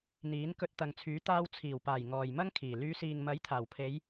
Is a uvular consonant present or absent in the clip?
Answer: absent